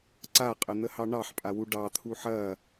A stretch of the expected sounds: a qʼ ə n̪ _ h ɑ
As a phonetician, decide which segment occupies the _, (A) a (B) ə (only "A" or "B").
B